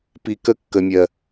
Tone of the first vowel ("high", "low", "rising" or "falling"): low